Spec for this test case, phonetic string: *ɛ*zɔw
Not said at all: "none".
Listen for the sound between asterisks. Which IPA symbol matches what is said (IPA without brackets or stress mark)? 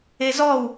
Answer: e